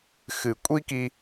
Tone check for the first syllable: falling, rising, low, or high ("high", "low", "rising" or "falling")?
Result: low